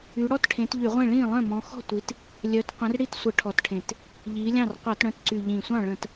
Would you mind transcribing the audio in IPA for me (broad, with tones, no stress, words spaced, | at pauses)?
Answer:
y˨˦ ɽɔ˥˩t ʈʰẽ˨˦tʎy˧˩˧ʁʷẽ˥˩ ɭĩː˥˩lˠœ̃˥˩mɔ̃˨˦ xɔ̤˥˩tʷi˨˦t | lʲœ˨˦t qʷə̃˨˦rɽi˥˩t sʷə˧˩˧ʈʰɔ˨˩tʈʰẽ˨˩t | ʎiː˨˦lʲɑ̃˥˩r qʷɑ˧˩˧tɽœ̃˨˦tǀy˨˩ ʎĩ˨˩sʷɑ̃˥˩ ɭə̃˧˩˧t